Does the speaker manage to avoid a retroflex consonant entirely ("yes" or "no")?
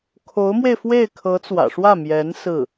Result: no